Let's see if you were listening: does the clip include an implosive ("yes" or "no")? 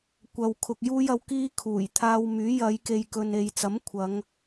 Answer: no